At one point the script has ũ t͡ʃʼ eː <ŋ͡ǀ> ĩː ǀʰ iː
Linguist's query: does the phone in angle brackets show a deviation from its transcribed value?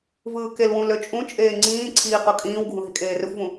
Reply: no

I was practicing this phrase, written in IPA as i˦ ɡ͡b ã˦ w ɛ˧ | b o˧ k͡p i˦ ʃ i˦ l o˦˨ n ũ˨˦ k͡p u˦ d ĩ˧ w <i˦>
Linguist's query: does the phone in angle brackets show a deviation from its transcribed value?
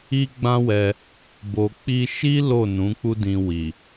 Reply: yes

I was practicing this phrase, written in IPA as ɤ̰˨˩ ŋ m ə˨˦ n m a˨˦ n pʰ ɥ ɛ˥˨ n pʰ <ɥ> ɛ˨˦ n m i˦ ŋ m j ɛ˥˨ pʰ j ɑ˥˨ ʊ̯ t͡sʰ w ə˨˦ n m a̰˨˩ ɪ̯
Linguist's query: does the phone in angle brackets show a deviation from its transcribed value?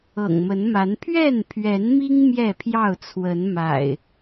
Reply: no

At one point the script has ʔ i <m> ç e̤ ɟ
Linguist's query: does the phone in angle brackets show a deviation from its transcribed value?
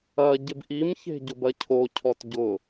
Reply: no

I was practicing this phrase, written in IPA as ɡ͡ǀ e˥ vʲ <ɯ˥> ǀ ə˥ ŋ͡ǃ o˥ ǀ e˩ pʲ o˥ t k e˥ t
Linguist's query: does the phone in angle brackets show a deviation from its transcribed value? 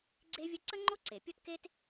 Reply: yes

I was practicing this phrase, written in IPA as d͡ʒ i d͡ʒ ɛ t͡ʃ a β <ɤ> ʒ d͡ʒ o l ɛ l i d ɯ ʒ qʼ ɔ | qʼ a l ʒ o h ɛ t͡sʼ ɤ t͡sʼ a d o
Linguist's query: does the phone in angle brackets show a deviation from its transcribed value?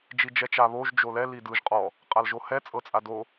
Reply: yes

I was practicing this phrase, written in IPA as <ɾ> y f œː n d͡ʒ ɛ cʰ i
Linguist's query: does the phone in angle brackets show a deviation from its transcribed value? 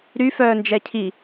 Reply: no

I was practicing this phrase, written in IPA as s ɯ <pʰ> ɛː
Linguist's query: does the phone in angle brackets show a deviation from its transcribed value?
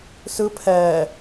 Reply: no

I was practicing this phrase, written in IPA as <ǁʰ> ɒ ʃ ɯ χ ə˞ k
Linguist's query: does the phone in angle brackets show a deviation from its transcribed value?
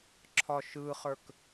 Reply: no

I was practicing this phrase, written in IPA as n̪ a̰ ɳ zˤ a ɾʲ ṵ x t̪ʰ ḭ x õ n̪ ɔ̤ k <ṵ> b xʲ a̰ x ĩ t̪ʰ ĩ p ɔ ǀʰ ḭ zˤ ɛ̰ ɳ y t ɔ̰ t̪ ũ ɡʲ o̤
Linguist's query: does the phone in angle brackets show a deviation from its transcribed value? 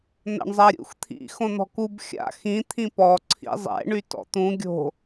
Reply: yes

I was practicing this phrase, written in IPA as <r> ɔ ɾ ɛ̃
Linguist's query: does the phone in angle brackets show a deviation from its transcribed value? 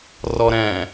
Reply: no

